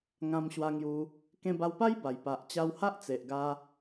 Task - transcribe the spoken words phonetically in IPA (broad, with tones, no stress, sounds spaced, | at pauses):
ŋ ã˧ m ɕ w a˧ ŋ j u˧ | k ẽ˧ b a˧ w p a˦ j b a˨˩ j p a˨ ʔ t͡ɕ a˧ w h a˦ ʔ t͡s e˨ ʔ ɡ a˧